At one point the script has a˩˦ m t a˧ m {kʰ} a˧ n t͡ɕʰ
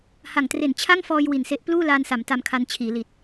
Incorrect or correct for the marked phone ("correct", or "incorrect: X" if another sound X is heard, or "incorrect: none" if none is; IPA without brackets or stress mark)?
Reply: correct